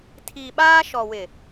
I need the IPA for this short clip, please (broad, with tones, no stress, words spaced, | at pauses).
tʰi˨ɓaː˦ ʃɔ˨wɪ˨